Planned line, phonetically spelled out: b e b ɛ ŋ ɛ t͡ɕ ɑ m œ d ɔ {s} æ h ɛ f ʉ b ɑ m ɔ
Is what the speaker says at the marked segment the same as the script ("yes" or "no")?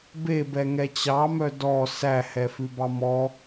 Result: yes